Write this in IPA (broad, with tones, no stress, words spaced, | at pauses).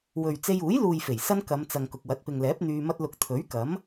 wɵ˨ɥ t͡se˧juː˨˥jluː˨jfe˨˩j sɐ˥nkɐ˨˧mt͡sɐ˨ŋ kʊ˨k̚wɐ˨˥t̚pɪ˨ŋlɛː˨˥p̚ n̪yː˧mɐ˥t̚lʊ˧k̚ t̪ʰɵ˨˥ɥkɐ˨˥m